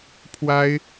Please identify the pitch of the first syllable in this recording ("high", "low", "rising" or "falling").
high